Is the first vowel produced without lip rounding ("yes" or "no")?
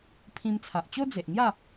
yes